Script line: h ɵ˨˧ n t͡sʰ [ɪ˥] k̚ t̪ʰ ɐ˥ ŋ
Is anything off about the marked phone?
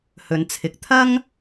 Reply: yes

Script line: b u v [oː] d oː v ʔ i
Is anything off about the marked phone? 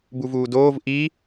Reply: yes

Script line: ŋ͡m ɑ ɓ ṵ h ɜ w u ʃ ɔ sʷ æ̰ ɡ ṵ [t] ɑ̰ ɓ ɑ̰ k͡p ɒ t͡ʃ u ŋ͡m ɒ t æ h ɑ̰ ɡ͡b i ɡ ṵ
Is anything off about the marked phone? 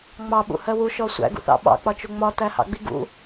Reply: yes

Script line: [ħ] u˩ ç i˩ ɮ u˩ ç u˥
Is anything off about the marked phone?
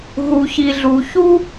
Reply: yes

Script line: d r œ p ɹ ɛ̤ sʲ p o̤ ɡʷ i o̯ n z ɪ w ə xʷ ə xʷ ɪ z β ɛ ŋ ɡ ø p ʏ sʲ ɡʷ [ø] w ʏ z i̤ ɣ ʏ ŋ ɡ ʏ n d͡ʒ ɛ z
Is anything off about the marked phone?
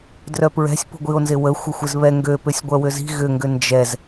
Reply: yes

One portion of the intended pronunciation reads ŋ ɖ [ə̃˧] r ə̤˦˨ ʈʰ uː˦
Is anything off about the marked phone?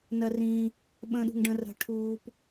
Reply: no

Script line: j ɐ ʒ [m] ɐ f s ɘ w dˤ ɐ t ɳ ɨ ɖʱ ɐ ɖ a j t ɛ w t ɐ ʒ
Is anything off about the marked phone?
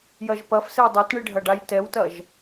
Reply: yes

